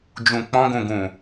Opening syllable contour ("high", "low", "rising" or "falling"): low